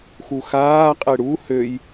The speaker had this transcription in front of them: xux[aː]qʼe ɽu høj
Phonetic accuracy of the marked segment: correct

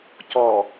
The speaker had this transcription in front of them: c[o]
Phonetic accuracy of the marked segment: incorrect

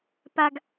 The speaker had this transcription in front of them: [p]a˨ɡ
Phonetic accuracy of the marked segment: correct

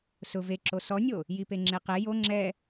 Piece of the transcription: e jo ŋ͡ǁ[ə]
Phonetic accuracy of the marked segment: incorrect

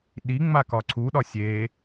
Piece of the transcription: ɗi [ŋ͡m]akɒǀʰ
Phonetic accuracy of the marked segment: correct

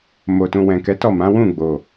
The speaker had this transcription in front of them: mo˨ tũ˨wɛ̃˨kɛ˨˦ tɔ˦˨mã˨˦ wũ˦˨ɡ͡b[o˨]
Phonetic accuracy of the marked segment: correct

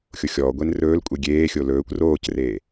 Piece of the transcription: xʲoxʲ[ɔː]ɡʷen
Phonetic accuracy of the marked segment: correct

